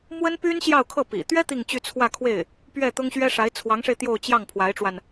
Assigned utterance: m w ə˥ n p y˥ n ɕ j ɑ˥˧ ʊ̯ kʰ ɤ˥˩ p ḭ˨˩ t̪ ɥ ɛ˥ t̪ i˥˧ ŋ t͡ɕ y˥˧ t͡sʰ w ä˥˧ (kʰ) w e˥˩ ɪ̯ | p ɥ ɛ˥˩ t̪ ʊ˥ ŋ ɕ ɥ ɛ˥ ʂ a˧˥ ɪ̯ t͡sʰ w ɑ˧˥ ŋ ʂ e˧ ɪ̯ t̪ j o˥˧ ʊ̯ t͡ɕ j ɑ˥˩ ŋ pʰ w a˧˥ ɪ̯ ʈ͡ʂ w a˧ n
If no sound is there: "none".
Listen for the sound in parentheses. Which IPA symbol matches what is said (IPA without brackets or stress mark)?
kʰ